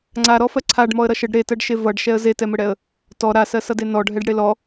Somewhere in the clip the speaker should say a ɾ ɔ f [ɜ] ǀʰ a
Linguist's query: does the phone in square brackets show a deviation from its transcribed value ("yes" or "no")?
no